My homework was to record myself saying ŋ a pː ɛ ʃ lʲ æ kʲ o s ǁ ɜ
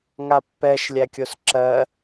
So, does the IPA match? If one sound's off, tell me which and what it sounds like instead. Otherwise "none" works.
none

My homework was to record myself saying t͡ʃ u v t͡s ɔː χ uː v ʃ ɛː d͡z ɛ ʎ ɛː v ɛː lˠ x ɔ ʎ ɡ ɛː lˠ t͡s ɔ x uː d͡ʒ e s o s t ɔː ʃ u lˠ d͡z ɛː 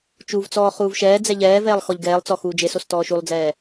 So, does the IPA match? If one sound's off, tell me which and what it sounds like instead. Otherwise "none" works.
none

